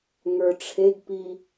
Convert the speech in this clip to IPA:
ŋ ə˞ ʈ͡ʂʰ e ɡ p i

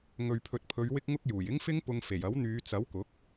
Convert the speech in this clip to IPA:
ŋ ɵ˨ ɥ pʰ ɵ˨ t̚ pʰ ɵ˨˧ ɥ w ɪ˧ k̚ ŋ ʊ˧ k̚ j uː˨˩ j ɪ˥ ŋ f ɪ˥ ŋ p ʊ˧ ŋ f e˨˩ j ɐ˨˥ w n̪ yː˨˧ t͡s ɐ˨˥ w k ʊ˨˥ k̚

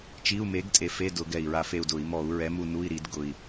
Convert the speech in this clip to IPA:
t͡ʃ i˧˥˧ u̯ m e˨˥ ɡ tʼ e˨˩ f e˧˥˧ d ʊ˧˩˧ ɡ ɛ˨˩ i̯ ɹ a˧˩˧ f e˦˨ u̯ d ʊ˧˩˧ i̯ m ɔ˧˩˧ u̯ ɹ ɛ˨˥ m u˦˨ n u˧˥˧ i̯ ɾ i˧˩˧ d ɡ ʊ˨˩ i̯

